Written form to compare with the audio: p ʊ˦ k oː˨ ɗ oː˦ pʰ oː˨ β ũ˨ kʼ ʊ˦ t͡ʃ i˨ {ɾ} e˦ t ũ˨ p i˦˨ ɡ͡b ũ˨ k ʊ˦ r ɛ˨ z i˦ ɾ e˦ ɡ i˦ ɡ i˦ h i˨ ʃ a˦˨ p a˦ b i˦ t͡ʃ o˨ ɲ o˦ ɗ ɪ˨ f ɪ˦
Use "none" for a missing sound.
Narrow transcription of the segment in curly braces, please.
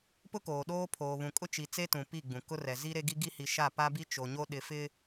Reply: t͡s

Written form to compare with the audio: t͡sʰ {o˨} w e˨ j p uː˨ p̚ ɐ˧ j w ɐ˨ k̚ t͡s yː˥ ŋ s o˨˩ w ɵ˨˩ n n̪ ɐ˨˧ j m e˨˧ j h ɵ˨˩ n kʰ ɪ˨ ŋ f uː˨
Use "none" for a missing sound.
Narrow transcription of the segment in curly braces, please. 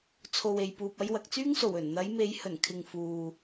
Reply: o˨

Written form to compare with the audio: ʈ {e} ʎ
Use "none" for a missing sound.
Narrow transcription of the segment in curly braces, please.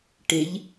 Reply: e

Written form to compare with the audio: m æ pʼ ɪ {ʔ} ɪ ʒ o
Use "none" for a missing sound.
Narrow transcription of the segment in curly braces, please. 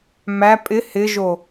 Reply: h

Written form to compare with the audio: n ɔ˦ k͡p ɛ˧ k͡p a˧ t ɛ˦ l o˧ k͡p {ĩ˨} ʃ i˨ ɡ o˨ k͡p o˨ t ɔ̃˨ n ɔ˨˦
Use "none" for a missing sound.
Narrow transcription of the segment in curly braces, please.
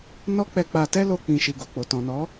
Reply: ĩ˨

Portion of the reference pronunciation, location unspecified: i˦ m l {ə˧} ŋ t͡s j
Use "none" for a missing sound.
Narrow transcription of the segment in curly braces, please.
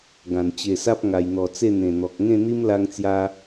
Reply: a˧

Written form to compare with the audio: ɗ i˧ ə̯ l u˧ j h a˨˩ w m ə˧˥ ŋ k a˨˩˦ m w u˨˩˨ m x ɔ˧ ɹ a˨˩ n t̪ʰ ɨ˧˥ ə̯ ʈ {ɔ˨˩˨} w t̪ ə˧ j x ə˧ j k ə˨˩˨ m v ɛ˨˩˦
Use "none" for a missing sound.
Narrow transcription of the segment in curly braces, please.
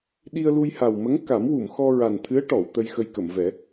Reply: ɔ˨˩˨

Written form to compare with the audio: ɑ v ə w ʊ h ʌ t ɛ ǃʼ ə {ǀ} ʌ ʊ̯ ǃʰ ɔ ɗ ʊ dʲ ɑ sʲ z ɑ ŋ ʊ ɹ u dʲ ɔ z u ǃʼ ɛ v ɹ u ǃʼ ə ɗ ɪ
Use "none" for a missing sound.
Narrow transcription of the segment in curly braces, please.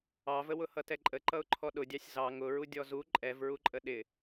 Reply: ǃ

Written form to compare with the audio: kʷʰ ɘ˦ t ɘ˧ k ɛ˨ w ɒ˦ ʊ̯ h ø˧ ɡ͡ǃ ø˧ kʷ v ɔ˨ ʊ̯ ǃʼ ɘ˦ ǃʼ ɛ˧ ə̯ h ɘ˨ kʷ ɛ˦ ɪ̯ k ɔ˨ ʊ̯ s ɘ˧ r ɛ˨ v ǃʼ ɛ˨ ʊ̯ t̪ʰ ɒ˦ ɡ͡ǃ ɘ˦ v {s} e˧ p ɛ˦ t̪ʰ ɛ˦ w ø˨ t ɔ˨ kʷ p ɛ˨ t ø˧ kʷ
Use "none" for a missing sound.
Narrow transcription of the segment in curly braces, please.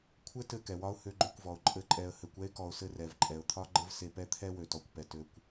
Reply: s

